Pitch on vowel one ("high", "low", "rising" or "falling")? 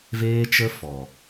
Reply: high